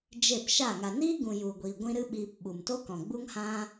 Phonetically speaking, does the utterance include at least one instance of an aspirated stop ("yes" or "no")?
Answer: no